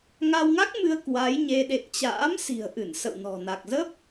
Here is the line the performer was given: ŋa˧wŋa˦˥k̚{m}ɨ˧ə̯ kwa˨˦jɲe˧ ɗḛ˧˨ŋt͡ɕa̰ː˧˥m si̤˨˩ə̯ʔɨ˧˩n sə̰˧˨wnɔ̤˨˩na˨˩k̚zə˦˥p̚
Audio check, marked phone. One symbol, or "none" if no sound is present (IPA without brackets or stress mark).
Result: m